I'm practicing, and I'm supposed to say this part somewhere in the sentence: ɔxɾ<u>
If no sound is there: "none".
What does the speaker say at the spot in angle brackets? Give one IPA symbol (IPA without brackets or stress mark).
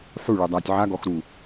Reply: u